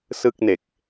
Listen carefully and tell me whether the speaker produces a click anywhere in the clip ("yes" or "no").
no